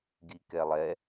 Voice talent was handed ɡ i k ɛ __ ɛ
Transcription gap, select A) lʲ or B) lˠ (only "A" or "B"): B